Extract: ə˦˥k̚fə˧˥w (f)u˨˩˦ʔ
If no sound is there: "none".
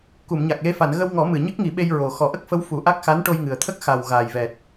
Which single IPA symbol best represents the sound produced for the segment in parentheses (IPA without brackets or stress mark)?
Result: f